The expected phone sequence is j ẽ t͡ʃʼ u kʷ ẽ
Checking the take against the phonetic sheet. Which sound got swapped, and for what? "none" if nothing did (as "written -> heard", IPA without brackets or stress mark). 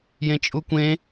none